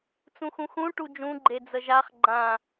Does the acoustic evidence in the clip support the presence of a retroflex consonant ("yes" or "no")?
yes